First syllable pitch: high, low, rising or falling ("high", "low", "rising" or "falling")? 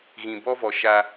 low